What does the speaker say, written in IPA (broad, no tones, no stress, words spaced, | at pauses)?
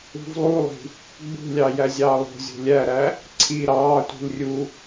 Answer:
ṳvlˠulˠi̤ | ɡ͡bṳlʲɑ jæzʲɑːlˠo̤zʲo̤ lʲæɾæ | ǀʰi ɾɑːtʷi̤l rʲu